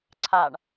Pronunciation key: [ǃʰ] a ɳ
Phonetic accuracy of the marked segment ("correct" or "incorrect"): incorrect